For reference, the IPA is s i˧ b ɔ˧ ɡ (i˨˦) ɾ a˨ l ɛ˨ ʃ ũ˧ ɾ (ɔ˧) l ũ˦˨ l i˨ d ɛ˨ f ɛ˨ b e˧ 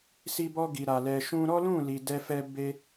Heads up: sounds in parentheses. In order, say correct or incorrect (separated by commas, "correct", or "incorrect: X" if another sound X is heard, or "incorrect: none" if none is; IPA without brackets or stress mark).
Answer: incorrect: i˨, incorrect: ɔ˦